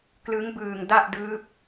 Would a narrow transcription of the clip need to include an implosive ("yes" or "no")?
no